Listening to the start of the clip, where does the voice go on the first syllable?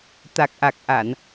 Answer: low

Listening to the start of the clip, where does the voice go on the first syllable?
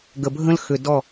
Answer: low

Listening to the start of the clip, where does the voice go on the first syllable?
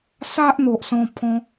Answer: high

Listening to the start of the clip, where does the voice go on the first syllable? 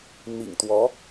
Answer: low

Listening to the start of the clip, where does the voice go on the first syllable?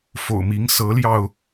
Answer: low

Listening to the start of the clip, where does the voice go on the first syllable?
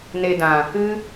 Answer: low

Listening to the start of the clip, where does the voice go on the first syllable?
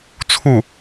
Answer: falling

